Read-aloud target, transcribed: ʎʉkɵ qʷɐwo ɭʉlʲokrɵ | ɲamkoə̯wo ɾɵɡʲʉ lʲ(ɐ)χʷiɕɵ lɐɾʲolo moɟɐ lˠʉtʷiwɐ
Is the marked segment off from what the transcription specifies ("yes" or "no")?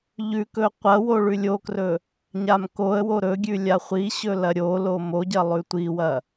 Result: yes